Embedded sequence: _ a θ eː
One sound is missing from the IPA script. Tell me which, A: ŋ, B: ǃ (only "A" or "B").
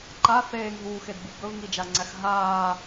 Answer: B